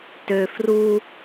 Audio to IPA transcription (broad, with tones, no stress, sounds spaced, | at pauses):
t ø˨ f r u˦